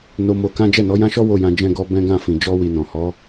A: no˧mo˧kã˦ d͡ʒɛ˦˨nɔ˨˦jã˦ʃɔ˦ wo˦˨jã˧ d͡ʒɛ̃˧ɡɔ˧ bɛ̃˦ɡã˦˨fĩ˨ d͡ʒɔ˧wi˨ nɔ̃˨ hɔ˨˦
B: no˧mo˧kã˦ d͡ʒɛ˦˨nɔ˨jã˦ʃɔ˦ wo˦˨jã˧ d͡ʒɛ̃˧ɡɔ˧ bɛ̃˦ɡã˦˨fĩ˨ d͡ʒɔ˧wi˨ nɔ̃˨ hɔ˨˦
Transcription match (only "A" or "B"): A